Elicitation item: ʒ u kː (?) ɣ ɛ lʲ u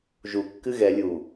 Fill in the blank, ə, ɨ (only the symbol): ɨ